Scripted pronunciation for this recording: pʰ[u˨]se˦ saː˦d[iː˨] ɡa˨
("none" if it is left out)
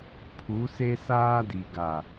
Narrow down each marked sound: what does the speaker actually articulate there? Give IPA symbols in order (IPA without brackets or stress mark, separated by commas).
u˨˦, i˨